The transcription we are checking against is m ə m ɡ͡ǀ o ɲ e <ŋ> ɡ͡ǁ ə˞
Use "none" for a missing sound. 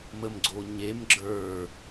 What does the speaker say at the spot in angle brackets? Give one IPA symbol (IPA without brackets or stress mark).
m